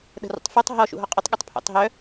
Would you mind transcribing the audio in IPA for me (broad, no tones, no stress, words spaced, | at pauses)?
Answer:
ɗə̤rṵtˤfotˤ ɦɔ ʃṵɦɔqʼʊtˤ ɠʏtˤpʰo̰tˤɦœ